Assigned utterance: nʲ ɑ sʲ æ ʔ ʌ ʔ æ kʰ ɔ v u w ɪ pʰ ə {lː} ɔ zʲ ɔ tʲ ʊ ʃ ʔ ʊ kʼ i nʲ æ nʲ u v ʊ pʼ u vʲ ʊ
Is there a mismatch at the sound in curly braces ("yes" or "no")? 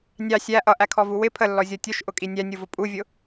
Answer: no